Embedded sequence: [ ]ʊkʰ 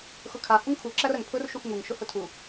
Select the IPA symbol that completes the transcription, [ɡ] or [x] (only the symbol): x